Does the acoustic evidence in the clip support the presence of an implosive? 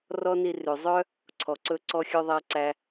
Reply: no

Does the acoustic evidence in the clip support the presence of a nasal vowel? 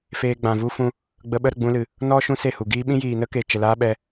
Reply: yes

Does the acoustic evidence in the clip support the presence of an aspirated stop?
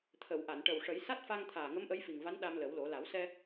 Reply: yes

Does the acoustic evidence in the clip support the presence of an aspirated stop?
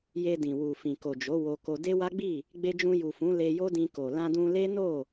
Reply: no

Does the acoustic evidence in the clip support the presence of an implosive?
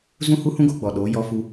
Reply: yes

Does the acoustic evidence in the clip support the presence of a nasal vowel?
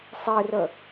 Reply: no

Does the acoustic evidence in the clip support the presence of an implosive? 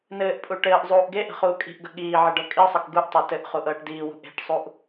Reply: yes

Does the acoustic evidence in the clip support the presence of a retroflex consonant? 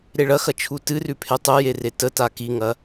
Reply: yes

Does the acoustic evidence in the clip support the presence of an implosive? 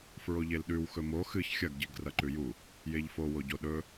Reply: yes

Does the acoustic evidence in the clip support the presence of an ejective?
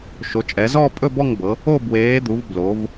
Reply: yes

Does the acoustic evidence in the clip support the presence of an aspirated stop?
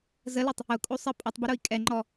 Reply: no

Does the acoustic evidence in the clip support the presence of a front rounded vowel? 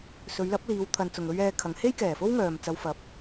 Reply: yes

